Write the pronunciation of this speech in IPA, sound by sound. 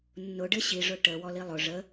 nː ʊ ɖ ɘ ɕ i ʐ ʊ ʈ ə w ɔ l i lˠ ʊ ʐ ə

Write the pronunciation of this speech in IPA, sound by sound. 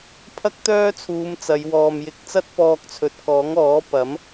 pʰ ɐ˥ k̚ t̪ œː˥ t͡sʰ uː˨˧ m t͡s ɐ˨˧ j w ɔː˨ m j ɪ˧ k̚ t͡s ɐ˥ t̚ p ɔː˧ k̚ t͡sʰ ɵ˨ t̚ k ɔː˨˥ ŋ ɔː˨˥ p ɐ˨˥ m

